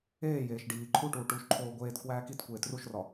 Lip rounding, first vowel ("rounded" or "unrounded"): unrounded